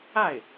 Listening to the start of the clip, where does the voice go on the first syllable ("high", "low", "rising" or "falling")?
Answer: falling